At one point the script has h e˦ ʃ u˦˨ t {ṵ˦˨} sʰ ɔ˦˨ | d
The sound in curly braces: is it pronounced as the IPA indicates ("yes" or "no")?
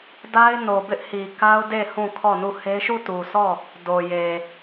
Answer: no